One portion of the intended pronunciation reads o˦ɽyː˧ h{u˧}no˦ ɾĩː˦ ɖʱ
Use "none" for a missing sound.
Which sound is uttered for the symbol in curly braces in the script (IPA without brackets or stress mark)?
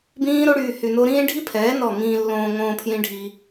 y˧